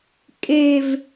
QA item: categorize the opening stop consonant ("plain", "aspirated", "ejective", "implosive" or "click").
ejective